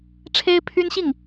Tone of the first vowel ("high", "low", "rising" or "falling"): high